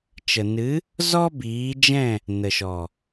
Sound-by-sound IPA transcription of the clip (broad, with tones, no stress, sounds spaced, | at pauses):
t͡ʃ ə˨ n ɨ˨˦ | z ɔ˦ b iː˨˦ d͡ʒ ɛ̃˦˨ | n ə˨ ʃ ɔ˨